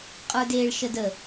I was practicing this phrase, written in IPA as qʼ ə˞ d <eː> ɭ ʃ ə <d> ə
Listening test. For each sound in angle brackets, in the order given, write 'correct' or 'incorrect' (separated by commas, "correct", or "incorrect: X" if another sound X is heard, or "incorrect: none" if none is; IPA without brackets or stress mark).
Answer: correct, correct